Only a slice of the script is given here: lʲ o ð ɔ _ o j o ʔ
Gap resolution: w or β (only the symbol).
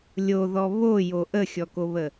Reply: β